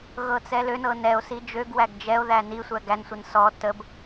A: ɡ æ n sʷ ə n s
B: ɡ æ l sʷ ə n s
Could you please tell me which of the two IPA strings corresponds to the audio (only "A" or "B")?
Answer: A